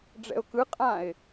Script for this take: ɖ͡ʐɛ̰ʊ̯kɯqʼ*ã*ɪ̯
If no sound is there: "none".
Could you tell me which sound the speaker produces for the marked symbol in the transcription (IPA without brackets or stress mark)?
ã